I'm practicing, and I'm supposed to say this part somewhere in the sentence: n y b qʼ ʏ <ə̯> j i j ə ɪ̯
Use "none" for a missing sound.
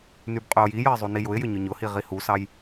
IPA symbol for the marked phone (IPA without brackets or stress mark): ʊ̯